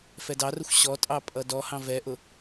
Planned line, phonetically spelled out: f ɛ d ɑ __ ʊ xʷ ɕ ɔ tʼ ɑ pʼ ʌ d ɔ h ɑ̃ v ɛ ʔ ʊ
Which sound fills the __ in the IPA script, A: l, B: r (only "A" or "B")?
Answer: B